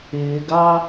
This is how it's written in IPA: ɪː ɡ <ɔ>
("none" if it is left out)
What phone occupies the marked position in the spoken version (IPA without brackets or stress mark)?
ɑ